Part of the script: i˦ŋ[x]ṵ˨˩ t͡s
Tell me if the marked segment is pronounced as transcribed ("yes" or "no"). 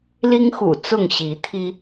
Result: yes